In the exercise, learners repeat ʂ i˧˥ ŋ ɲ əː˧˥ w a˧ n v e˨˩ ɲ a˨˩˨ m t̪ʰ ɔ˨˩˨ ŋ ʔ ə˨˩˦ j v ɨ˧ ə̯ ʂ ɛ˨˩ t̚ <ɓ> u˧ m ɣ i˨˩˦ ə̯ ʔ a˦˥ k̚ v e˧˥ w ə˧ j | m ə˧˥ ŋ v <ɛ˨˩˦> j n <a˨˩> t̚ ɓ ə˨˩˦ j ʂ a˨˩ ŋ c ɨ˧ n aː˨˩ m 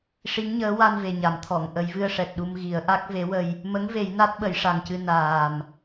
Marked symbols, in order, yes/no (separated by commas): no, no, no